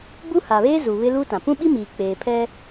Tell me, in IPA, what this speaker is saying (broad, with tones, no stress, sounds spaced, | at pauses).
b u˦ h a˨ β eː˦ z u˨ β ɪ˦ l u˦ t ã˨ p ũ˦ ɓ i˦ m iː˨ k͡p eː˨ pʰ ɛ˦